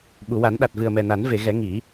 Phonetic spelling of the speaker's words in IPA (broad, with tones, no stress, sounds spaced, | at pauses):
ɓ u˨˩˨ w a˨˩˦ n ɗ a˨˩ t̚ v ɨ˨˩ ə̯ m ɛ˨˩ n a˨˩˦ n v e˨˩˨ ɣ ɛ˨˩˦ ŋ i˨˩˦